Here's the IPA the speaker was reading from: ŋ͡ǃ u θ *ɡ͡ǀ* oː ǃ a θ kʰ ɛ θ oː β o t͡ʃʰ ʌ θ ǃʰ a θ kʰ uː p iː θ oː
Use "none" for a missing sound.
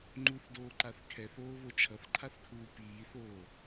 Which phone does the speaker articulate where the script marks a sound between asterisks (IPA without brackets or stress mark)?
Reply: d